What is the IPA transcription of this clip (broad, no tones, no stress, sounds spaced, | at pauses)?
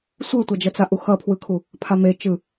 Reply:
sʷ ɯ tʷ a d͡ʒ ʌ t͡s a ʔ u x ʌ pʰ w ɯ kʰ u | pʰ a m e t͡ʃ ɯ